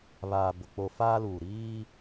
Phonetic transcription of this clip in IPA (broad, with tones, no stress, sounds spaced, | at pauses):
β aː˨ b ʊ˨ k͡p o˨ f aː˦ l uː˨ ɾ iː˦